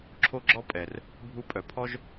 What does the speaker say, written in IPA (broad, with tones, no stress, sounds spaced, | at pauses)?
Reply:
ǁʰ o˦ ɡ͡ǁ ɔ˦ pʼ ɛ˨ r | bʱ u˧ pʼ œ˨ pʰ ɔ˦ ʒ